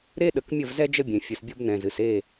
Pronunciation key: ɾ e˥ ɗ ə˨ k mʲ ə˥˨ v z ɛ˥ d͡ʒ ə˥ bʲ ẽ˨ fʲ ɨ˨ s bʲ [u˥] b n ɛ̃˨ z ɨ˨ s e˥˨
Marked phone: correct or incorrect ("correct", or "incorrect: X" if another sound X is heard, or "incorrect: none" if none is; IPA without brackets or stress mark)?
incorrect: o˥